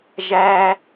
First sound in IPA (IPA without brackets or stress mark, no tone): ʒ